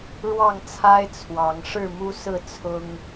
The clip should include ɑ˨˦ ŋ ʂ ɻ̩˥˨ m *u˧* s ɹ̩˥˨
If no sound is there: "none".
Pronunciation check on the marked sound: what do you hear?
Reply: u˦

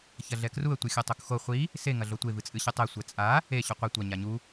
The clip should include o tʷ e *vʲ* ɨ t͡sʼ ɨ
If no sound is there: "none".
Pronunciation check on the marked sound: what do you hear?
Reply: v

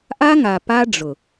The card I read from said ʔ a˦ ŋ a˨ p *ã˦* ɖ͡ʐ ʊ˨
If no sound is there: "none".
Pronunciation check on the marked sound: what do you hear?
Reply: a˦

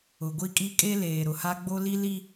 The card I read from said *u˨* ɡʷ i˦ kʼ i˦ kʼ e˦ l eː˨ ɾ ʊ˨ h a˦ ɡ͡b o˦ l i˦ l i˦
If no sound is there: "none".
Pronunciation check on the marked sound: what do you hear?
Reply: ʊ˨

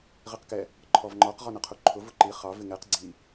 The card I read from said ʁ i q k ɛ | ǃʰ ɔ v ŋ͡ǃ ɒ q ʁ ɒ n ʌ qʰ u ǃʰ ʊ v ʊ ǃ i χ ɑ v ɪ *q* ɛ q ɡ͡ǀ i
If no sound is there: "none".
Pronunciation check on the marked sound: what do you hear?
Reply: ŋ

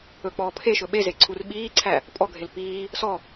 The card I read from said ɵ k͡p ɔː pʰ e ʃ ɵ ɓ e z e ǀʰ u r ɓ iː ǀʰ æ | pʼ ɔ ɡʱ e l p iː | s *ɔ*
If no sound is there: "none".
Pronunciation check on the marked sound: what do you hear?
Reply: ɔ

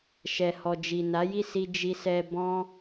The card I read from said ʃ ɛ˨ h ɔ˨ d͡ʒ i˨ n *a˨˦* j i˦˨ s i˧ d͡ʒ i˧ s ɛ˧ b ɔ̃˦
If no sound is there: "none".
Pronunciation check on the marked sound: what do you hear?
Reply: a˨˦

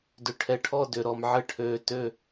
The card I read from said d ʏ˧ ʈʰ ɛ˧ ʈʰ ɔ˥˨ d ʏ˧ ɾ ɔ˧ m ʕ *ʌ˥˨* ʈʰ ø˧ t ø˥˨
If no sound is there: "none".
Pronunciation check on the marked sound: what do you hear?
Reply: ə˥˨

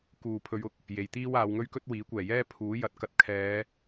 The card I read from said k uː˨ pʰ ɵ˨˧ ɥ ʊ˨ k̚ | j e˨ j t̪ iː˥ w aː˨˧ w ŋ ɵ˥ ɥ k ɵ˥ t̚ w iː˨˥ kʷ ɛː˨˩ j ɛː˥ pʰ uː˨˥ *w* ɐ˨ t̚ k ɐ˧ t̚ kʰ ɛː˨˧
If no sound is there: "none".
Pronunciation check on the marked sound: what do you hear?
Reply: j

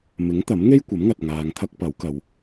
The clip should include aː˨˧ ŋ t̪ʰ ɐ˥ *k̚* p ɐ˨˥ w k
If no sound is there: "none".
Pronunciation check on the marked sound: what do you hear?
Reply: k̚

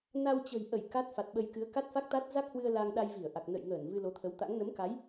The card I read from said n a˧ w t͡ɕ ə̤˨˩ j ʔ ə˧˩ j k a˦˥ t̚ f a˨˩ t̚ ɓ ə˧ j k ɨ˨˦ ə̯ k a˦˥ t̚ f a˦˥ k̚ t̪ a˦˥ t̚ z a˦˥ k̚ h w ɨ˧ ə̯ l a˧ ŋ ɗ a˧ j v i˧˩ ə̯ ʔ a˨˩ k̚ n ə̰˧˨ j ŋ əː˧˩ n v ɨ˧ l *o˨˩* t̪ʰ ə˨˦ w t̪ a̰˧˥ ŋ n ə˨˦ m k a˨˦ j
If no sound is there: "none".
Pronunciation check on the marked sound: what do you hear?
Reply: o˨˦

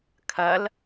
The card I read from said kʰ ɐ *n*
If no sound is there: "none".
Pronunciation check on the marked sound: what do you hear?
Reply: l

